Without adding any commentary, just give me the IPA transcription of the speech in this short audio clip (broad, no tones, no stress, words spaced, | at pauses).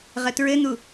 ʁətɹɘn̪u